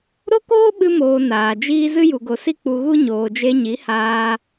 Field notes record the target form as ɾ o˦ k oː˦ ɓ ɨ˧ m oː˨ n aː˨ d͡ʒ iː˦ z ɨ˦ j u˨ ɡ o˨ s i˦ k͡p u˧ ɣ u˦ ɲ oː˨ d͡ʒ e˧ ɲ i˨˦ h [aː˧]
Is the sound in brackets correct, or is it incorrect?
correct